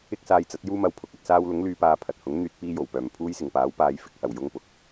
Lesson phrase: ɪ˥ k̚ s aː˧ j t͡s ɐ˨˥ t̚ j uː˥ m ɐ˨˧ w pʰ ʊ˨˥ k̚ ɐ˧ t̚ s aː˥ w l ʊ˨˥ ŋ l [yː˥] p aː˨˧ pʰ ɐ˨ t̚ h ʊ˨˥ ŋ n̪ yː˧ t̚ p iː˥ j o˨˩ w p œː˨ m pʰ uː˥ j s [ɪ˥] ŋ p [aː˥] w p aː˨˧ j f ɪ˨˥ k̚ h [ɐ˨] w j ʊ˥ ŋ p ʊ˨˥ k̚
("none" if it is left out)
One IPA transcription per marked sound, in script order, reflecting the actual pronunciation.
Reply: yː˨˧, ɪ˨, aː˨˥, ɐ˨˩

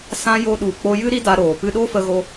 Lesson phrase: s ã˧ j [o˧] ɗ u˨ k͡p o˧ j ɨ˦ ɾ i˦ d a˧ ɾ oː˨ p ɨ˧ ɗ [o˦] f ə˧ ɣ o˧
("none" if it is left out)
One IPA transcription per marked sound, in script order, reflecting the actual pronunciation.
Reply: o˧, o˦

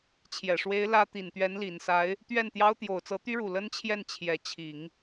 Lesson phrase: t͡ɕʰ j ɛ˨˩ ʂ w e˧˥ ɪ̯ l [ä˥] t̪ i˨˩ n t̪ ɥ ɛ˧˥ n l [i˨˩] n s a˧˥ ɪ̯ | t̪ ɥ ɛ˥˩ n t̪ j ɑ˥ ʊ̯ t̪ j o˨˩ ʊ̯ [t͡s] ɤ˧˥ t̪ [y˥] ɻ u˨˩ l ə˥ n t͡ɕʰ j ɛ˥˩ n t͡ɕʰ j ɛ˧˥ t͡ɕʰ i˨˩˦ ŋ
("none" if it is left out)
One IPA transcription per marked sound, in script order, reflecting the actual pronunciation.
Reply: ä˥, i˨˩, t͡s, y˥

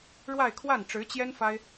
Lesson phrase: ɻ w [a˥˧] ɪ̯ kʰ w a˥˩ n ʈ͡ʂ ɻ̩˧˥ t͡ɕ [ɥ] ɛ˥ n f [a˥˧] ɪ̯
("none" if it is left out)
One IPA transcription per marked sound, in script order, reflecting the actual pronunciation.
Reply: a˥˧, j, a˥

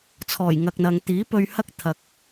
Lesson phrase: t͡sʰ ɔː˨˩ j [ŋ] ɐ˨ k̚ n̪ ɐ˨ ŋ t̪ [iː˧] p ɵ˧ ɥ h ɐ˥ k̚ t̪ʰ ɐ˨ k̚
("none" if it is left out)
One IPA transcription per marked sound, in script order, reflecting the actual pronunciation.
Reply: ŋ, iː˨˥

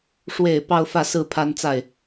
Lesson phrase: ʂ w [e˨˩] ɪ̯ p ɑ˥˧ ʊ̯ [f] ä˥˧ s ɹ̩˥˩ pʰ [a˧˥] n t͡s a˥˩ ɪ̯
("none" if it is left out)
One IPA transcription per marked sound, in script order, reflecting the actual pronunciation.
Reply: e˨˩, f, a˥

